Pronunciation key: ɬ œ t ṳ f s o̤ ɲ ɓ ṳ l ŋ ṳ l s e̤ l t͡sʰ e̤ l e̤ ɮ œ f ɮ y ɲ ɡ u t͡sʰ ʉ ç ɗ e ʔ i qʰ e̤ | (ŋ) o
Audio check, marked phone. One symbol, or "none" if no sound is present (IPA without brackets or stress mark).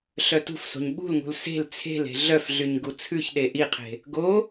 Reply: ɡ